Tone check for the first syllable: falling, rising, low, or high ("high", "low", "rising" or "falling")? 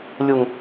low